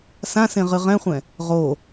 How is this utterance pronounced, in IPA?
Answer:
s ã s ẽ ʁ ɨ ʁ ɛ̃ χʷ ɛ̃ | ʁ o

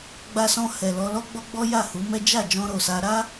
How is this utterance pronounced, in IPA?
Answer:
ɡ͡b a˧ s ɔ̃˧ h ɛ˨ l ɔ˧ l ɔ˦ ɡ͡b ɔ˦ ɡ͡b ɔ˦ j a˦˨ h u˨˦ m ɛ˦ d͡ʒ a˦˨ d͡ʒ ɔ̃˧ ɾ o˨ s a˧ ɾ a˦

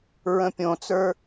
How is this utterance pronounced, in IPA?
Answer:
ɹ ə̃ pʲ õ t͡s ə˞

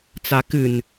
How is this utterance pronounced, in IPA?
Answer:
t͡s a k ɨ n

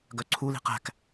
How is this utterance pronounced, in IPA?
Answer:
ɡ œ ǀʰ u l i̤ q æ̤ k

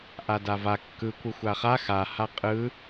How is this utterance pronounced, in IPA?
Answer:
ʔ a d a v a kː ɯ kʷ ɯ xʷ a χ a x a h a qʼ ɯ

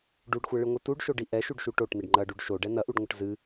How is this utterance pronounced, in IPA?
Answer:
ɖ u ɖ xʷ ɛ ɭ ɨ ŋʷ ɨ t u ɖ ʃ o ɖ i ʔ ɛ ʃ u ɖ ʃ u ʈ o ʈ n ɘ ɖ ŋ͡ǃ ɐ ɖ u ɖ ʃ o ɖ ɛ n ɐ ʔ u ɖ ŋʷ ɘ ʈ z ɨ

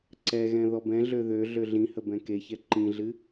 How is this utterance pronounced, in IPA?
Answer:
ǀ ɛ ɣ ɛ̃ ð ɔ b ɛ̃ ɮ ø ð ø ɮ ø ɮ ĩ h ə b ɛ̃ k e ç ɛ ǃ ĩ ɮ ɨ

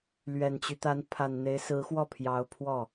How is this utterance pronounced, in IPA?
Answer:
l ɥ ɛ˨˩ n t͡ɕ y˦ t̪ a˧˥ n pʰ a˨˩ n n̪ e˧˥ ɪ̯ s ɹ̩˧˥ x w ɔ˥˩ pʰ j ɑ˧˥ ʊ̯ pʰ w ɔ˥˩

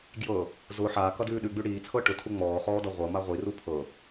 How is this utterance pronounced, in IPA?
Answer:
ɡ j ɤ | z ʊ ħ aː k ʌ d ʉː ɗ ʉ ɡ͡b ʉ ɽ iː t͡sʰ ɤ ʈ ʊ tʰ u ŋ͡m ɔː χ ɔː d ʌ ʁʷ ɤ m a ʁʷ i r u pʰ ɤ

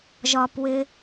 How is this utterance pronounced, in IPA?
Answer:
ʒ ɒ p w ɪ

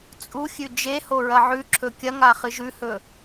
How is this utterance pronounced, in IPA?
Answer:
t͡sʼ u xʲ ʉ d͡ʒ e h o ɹ ɐ ʕ ʉ ǁʰ ɵ kʲ ɐ ŋ a χ ɨ ʒ ʉ h ɵ

